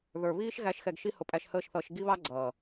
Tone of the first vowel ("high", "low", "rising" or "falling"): low